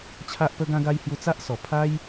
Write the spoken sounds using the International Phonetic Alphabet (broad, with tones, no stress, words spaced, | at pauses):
t͡ɕʰa˦ʔpə˦ɡã˦ɡa˦j hju˧t͡sa˦ʔsɔ˨˩pʰa˦j